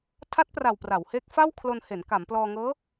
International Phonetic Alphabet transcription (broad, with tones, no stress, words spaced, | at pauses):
tʰa˦˥t̚pra˨˩w pra˩˦whe˦˥k̚ fa˥˩w kʰlo˧nhe˩˦n ka˩˦mplɔː˧ŋɤː˦˥